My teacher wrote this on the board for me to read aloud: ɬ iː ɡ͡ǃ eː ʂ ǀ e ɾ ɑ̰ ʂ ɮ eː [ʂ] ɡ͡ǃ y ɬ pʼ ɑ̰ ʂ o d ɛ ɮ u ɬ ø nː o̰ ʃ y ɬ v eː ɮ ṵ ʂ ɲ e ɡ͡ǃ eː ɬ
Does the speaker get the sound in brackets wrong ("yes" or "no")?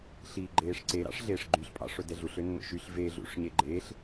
no